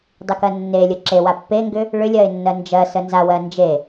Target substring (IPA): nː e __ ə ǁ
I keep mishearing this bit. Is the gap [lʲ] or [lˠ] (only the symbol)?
lʲ